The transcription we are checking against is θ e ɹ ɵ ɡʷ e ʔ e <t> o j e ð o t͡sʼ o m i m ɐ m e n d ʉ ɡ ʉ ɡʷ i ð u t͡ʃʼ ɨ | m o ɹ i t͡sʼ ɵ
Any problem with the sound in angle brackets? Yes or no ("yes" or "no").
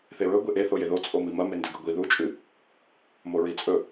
yes